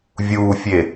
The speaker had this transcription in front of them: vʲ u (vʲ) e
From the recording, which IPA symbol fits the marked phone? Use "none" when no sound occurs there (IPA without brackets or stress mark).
fʲ